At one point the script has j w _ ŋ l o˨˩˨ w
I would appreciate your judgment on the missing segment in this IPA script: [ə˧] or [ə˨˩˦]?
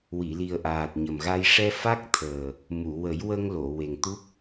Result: ə˧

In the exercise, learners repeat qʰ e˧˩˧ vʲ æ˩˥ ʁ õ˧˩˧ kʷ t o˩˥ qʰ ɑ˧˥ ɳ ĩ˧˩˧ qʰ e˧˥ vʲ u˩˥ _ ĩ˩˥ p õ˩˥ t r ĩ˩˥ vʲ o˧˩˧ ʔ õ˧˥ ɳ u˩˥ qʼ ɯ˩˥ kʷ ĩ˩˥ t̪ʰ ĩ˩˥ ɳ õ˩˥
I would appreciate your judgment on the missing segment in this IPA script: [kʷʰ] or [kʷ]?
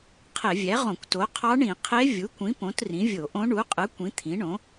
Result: kʷ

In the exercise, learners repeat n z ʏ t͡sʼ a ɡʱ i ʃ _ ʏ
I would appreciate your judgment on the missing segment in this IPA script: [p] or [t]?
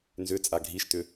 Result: t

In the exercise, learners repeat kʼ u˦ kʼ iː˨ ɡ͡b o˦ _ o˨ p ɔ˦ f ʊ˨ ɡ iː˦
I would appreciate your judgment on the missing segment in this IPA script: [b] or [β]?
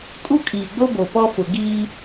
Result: b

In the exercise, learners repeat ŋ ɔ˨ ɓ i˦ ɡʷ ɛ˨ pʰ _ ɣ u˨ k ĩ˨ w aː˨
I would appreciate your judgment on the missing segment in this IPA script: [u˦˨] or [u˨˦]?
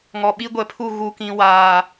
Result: u˦˨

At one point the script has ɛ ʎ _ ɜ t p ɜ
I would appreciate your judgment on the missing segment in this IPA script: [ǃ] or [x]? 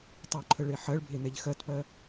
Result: x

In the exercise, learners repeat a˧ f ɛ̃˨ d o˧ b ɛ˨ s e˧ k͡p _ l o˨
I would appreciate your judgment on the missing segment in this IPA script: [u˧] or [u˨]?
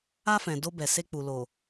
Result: u˨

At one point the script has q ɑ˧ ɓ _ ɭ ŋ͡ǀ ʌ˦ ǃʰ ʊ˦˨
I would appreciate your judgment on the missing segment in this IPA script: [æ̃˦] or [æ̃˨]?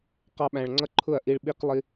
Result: æ̃˨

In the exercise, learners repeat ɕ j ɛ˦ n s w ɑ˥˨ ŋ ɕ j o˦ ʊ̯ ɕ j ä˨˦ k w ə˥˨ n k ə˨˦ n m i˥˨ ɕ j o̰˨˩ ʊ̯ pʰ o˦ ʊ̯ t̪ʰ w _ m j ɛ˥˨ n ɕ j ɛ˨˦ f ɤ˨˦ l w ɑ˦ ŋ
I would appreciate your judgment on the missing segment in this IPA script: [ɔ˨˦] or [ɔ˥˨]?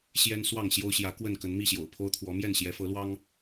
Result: ɔ˨˦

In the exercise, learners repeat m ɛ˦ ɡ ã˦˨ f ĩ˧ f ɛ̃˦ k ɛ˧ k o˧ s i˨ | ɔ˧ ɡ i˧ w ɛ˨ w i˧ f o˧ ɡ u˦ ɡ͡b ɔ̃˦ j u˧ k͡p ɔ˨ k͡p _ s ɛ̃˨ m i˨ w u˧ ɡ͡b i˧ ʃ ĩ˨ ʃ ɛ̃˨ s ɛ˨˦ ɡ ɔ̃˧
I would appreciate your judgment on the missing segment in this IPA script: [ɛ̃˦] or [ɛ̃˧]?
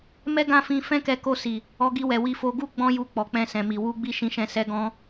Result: ɛ̃˧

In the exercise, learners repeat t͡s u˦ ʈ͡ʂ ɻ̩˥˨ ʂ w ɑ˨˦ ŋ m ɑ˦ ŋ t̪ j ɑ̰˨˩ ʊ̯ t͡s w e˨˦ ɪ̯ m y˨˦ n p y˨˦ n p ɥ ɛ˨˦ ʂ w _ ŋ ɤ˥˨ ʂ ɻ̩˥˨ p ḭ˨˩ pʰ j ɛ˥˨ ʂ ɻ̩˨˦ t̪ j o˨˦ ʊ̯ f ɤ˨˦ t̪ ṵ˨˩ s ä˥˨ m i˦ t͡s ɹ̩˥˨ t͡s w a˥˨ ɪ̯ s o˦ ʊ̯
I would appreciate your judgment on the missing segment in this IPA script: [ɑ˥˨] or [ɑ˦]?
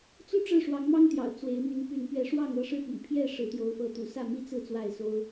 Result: ɑ˥˨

